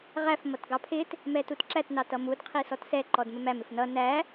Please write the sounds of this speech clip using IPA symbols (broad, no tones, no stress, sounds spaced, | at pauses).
ʁ æ f m ʌ t ɡ ɑ pʰ ɪ t | m ɛ t u t ǁ æ t n ɑ t ʌ m u d qʰ i s ɔ t s ɛ ǃ ɔ d m ə m æ m ɪ f n ʌ n æ